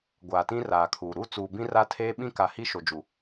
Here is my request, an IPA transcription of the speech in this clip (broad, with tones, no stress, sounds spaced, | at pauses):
ɡʷ aː˨ t ĩ˦ r aː˨ kʰ uː˨ ɾ u˦˨ t͡s uː˨ b ĩ˦ r a˦ tʰ eː˦ ɓ ĩ˦ k a˨ h i˦ ʃ o˨ d͡ʒ u˨